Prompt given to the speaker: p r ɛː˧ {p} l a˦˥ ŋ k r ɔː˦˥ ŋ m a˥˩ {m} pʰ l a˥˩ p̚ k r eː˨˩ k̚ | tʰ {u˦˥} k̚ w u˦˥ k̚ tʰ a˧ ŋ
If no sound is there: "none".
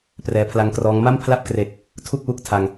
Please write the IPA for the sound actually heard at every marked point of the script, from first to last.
pʰ, m, u˥˩

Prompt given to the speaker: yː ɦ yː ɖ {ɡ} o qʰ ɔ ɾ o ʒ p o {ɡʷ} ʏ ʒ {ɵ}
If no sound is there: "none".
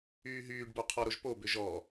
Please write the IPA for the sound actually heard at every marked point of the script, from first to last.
b, b, ɔ

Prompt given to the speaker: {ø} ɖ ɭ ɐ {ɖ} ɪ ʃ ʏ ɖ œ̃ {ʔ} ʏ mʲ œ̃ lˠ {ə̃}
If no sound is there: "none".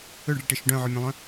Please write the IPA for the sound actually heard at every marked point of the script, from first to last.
ø, ʈ, ʕ, œ̃

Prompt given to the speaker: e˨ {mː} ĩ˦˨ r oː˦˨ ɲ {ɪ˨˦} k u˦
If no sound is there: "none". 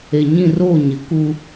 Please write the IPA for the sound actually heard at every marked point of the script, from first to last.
ɲ, ɪ˨˦

